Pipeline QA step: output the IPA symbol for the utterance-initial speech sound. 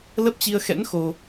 l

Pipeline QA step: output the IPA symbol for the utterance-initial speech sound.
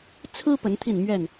t͡sʰ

